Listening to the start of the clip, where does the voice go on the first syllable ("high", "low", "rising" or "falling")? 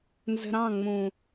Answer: low